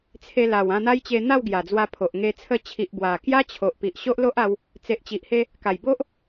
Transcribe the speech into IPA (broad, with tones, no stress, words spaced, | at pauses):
t͡sʰe˧la˨˩w ã˧n̪a˦jt͡ɕe˧ n̪a˥˧wɡja˨˩d͡zwa˧pʰo˨ʔ ŋe˧ t͡sʰə˧t͡ɕʰi˨ʔ bwa˨˩kja˦t͡ɕʰo˨ʔ pi˨ʔɕo˦ʔ lo˦ʔa˧w | t͡se˨ʔt͡ɕi˨ʔhe˧ | ka˨˩jbo˦ʔ